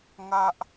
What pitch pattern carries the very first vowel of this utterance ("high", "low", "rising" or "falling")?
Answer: high